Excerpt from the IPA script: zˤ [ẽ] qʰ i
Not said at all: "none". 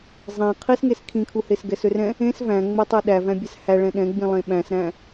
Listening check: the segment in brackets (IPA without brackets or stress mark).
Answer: ẽ